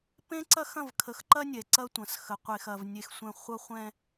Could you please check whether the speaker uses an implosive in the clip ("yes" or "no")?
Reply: no